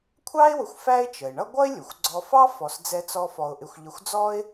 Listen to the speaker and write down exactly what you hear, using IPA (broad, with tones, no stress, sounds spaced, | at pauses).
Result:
kʷʰ ɑ˥ ɪ̯ w ʊ˧ xʷ f æ˥ ɪ̯ t͡ʃ ə˩ ɪ̯ ɳ ʌ˥ ɡʷ ʌ˥ ɪ̯ lʲ ʊ˩ xʷ ɡ͡ǀ ɔ˧ f ɑ˥ f ɔ˧ s d͡z ɛ˥ t͡s ɔ˥ f ɔ˧ ʊ̯ ʔ ɪ˧ xʷ ʎ ə˧ xʷ d͡z ɔ˥ ɪ̯